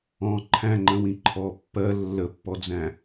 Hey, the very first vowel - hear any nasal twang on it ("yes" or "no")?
yes